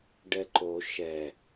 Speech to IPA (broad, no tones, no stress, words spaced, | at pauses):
ɖɛǃo ʃɛ